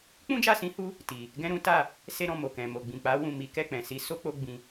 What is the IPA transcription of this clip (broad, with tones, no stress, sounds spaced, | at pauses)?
k͡p ũ˦ d͡ʒ a˦˨ s ĩ˧ h u˦ | t i˨ | ɡ ɛ̃˦ ɾ ũ˦ t a˦˨ | s e˦ ɾ ɔ̃˦˨ m o˨ k ɛ̃˨ m o˨ ɡ͡b ĩ˨ k͡p a˨˦ w ũ˦˨ m i˨˦ k ɛ˦˨ k͡p ɛ̃˨ s i˨˦ s o˦ k͡p o˧ ɡ͡b ĩ˧